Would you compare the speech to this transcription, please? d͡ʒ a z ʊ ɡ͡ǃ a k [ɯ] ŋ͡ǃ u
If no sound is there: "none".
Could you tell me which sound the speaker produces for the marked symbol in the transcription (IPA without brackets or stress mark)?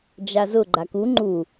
u